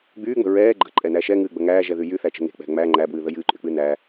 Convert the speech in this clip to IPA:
ɡ͡b yː ŋ͡m ə̤ ɹ ɛː ɡ͡ǃ ə̤ ǃʼ ɛ n æ ʃ ɛ ŋ ɨː ɡ͡b ə ŋ æː ʒ ɛ ð y j y θ æ t͡ʃ ə̤ ŋ e̤ k͡p ɛ̤ ŋ͡m æ ŋ͡ǃ æ b w ɨː ð ə j ɨː ǃʼ y k͡p ɨ n æː

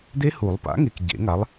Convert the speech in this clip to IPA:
d e˦˥ h u˨˩˦ lˠ p a̰˨˥ ŋ e˨ k ɟ ḛ˨˩˦ ŋ a˨˥ lˠ

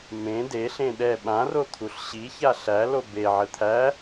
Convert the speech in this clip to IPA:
m ẽ d e ɬ ẽ ɗ ɛ ɓ ã r o t̪ʰ u ɬ ɕ i ç a ɬ æ l o b e ʕ ɘ t̪ʰ æ

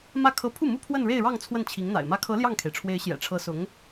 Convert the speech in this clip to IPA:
m ä˥˩ kʰ ɤ˥ pʰ u˥˩ m u˥ pʰ w ə˥˧ n ɻ e˥˧ ɪ̯ ɻ ɑ˥˧ ŋ t͡sʰ w ə˥˩ n t͡ɕʰ i˧˥ ŋ n̪ a̰˨˩ ɪ̯ m ä˧˥ kʰ ɤ˧˥ l j ɑ˥˩ ŋ kʰ e˩ ɪ̯ ʈ͡ʂʰ w e˧˥ ɪ̯ ɕ j ɛ̰˨˩ ʈ͡ʂʰ ɤ˧˥ s ʊ˧˥ ŋ

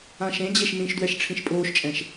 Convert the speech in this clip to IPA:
ã ʃ ẽ d͡ʑ e ʃ n ĩ ʃ d w ɛ ʃ ʈ͡ʂʰ ĩ ʃ pʼ oː ʃ t͡ʃʼ ɛ̃ ʃ

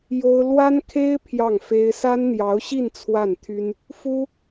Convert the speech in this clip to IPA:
j o˥ ʊ̯ l w a˥ n kʰ e˥ ɪ̯ pʰ j ɑ˥˩ ŋ f e˥ ɪ̯ s a˥ n n̪ j ɑ˧˥ ʊ̯ ɕ i˥˧ n t͡sʰ w a˥˩ n t̪ʰ y˥ n | f u˥

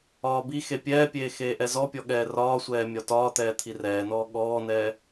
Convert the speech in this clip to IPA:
ɒː b i x e pʲ ɛː pʲ eː x eː ʔ ɛ z ɔ pʲ ɔ ɠ ɛː r ɒː sʷ ɛː mʲ ɒ t ɒː t̪ ɛː t̪ʰ i r ɛː n ɔː ɠ ɔː n ɛː

